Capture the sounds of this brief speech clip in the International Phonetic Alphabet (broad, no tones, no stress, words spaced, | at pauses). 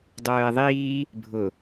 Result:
dˤœːe̯ðˤiː | bʱʊ